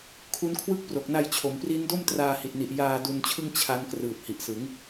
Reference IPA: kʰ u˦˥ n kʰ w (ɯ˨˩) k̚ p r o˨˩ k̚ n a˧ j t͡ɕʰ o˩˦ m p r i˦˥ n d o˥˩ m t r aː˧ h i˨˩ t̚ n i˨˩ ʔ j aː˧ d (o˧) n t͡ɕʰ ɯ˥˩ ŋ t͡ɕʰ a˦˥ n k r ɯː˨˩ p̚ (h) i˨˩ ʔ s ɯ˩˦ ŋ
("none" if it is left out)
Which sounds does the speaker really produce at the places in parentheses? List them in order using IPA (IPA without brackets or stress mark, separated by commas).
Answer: ɯ˦˥, u˧, h